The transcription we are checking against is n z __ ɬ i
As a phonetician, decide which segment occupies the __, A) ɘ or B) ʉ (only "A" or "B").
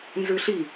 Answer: B